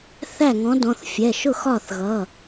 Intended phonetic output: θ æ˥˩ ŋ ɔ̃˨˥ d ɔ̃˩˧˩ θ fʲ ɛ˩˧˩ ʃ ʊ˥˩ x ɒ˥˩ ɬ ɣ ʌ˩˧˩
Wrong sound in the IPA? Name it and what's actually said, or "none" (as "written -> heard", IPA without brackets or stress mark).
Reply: ɬ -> θ